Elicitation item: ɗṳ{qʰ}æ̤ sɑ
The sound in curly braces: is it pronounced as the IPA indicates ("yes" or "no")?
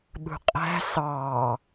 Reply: no